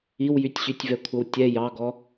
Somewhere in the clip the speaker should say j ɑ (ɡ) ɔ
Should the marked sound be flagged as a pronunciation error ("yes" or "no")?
no